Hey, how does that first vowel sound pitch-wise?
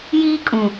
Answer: high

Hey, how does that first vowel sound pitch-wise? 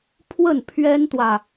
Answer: falling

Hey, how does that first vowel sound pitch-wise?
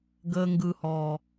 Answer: low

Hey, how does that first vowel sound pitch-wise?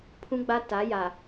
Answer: high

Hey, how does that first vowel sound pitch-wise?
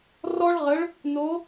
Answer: high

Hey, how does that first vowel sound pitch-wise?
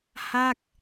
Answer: falling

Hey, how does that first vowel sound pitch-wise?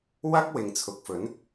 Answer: high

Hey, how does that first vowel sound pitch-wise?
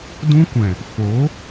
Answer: high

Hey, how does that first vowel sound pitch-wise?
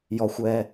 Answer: low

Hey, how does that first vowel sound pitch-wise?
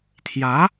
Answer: rising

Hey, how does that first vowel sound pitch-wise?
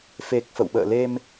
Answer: low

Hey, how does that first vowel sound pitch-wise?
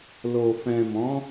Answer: low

